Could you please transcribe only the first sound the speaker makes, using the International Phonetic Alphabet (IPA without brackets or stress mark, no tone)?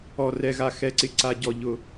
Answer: ɔ